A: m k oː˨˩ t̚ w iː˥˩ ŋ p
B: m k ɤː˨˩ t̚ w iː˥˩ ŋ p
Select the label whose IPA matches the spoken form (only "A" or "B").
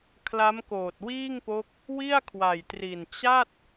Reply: A